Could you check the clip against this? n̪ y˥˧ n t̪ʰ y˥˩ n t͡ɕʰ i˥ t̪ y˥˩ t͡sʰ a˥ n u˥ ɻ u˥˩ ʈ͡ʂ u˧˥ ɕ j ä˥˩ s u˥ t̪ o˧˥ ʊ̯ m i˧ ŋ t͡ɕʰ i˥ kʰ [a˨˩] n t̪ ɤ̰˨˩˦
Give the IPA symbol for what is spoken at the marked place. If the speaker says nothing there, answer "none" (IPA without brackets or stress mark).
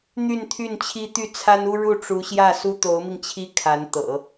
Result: a˧˥